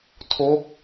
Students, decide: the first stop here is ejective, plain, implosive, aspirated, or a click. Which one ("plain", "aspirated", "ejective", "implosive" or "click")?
aspirated